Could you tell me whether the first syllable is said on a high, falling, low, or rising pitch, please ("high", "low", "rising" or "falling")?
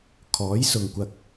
rising